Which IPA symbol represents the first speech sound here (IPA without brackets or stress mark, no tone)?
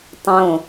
tˤ